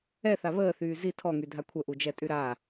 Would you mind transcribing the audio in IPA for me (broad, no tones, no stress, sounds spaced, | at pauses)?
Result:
ɛ θ a β əː θ yː z i tʰ ɔ ŋ y dʱ a kʷʰ ə ʔ u d͡ʒ ɛ tʼ y ɾ a